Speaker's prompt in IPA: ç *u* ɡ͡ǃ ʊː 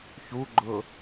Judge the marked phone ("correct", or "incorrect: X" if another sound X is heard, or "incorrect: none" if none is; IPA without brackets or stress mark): correct